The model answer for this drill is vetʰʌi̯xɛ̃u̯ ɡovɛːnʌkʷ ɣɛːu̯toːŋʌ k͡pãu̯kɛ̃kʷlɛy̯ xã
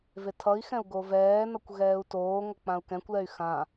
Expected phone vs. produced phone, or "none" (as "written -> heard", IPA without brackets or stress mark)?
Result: none